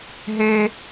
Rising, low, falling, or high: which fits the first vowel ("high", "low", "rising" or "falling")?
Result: high